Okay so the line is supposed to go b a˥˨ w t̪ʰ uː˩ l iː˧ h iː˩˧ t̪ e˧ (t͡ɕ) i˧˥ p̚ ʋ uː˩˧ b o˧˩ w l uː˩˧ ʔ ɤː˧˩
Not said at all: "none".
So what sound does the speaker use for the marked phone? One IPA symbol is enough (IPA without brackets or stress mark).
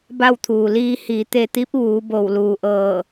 t̪